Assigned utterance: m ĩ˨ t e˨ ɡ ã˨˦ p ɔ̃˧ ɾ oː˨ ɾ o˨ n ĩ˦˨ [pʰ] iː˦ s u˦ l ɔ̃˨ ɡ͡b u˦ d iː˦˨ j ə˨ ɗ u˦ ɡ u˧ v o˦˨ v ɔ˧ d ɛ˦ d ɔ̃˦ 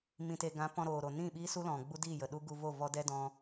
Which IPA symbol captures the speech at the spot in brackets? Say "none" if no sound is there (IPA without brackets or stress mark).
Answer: ɓ